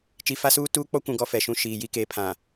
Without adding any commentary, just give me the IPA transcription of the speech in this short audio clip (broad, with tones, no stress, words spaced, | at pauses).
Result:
t͡ʃi˨fa˦suː˦ tuː˦k͡pɔ˦kʷũ˨ ɡɔ˦fɛ˨ʃũ˦ ʃiː˨ji˦ke˨˦pʰã˨